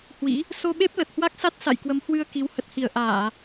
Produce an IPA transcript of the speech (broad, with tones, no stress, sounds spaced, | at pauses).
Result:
h w ḭ˧˥ | s o˧ ɓ e˦˥ p̚ l ə˨˩ t̚ h w a˦˥ k̚ s a˦˥ t̚ s a̰˧˨ j k w ə˨˦ m h w ɨ˧ ə̯ k i˨˦ w h ə˨˩ t̚ h i˧˩ ə̯ ʔ aː˧˩˨